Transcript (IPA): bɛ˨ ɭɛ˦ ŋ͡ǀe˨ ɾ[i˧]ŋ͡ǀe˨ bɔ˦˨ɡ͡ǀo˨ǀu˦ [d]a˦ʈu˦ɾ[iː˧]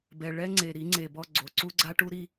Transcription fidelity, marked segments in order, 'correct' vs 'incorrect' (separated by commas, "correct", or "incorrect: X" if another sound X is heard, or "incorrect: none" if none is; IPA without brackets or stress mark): incorrect: i˨˦, incorrect: ɡ͡ǀ, incorrect: i˧